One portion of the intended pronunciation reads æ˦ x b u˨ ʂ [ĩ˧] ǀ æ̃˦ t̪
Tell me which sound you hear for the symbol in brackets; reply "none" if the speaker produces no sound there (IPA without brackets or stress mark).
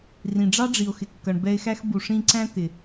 ĩ˧